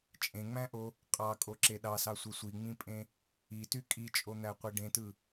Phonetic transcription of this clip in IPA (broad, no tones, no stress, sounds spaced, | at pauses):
t͡ʃʼ ẽ ŋ͡m æ̃ ʔ o | qʼ ɑ kʼ o ǁ e ɗ ɑ s ɑ sʷ e sʷ i ŋ͡m ĩ pʼ ẽ | i t y kʼ i t͡ʃʼ o n̪ æ qʷ e ɖ ẽ t ɯ